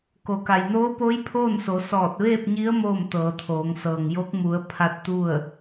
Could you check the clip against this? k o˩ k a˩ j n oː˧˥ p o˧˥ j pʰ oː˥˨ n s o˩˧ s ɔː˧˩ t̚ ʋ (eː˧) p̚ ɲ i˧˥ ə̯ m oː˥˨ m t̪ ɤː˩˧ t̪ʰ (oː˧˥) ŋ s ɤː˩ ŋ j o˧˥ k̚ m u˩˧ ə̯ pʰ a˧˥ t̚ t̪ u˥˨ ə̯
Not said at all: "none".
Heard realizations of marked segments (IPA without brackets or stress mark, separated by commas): eː˥˨, oː˩˧